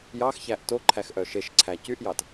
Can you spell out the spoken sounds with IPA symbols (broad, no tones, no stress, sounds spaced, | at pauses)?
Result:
j ɑ x ç æ ʔ t o ǃʰ æ x ʔ œ ʃ e ʃ ǀʰ æ c y ʔ j ɑ t